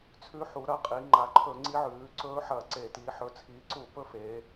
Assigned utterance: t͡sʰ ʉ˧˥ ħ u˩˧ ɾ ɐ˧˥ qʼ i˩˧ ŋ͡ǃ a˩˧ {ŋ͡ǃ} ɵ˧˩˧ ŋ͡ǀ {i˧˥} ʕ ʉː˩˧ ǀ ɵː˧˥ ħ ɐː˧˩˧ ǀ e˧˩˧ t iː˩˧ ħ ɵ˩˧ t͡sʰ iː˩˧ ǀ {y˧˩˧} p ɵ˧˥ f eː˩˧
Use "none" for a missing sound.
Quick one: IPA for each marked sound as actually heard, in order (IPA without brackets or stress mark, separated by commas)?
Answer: ǃʰ, i˧˥, u˧˩˧